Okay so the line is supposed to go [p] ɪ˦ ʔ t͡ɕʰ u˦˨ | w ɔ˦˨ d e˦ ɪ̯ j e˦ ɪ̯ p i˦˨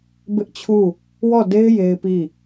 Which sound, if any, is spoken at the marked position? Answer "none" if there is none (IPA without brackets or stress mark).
b